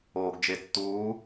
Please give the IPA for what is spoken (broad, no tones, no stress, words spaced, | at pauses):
oːɡd͡ʒetːuː